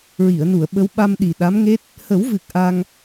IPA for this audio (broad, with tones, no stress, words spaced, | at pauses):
ɹi˨˩˨ə̯nu˨˩˨ə̯ ɓə˧˥wɓa˧m ɗi˨˩ ɗa˧˥mŋe˦˥t̚ | hə˨˩˦wvɨ˨˩k̚ ʔa˧ŋ